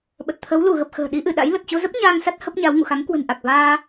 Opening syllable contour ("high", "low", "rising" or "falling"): low